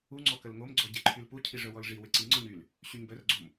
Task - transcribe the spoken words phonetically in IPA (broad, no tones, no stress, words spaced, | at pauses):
u ŋ͡ǀɔkəlŋomɡ͡ǀɔ ɟeǃʰylpucʰi ʐœwɔlʐiwɪ ǀiŋ͡ǀɔɲ yl | ɕyɲbœrɡ͡ǀom